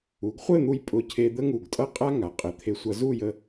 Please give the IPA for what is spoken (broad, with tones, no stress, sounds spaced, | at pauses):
u˩˧ ɡ χʷ ɘ˥˧ n̪ u˧ j pʼ ʊ˧˩ cʰ e˧ d̪ ə˥ ŋ u˧˩ ɡ tʼ ʌ˥˧ qʼ a˥ ŋ a˩˧ qʼ ɘ˩˧ t̪ʰ e˧ sʷ ʌ˧ z u˥˧ j ə˧